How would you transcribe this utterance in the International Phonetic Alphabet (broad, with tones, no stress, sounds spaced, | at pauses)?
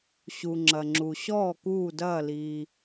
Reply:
ɕ u˩ ŋ͡ǁ ɐ˩ ŋ͡ǁ u˩ ɕ ɔː˧˩ k uː˧˩ d ɐː˧˩ l iː˩